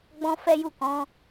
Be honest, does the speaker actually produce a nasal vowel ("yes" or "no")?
yes